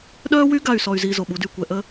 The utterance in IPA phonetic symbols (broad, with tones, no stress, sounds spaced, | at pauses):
ɗ œː˦ w y˦ ɡ a˦˨ y̯ s ɔ˨ y̯ z iː˨ z o˨ ɓ u˨˦ d yː˨ kʷ ɛ˨ ʔ ə˦